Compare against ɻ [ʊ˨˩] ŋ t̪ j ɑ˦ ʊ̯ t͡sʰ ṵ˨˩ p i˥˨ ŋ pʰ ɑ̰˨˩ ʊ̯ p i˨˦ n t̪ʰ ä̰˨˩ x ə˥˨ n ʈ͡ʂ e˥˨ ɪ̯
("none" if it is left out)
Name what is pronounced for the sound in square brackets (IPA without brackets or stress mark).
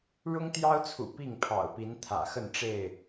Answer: ʊ˦